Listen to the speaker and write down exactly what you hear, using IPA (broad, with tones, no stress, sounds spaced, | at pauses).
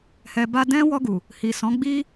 h ɛ˨ b a˧ d ɛ̃˦ w ɔ˧ ɡ u˨ | h i˨ s ɔ̃˨˦ ɡ͡b i˦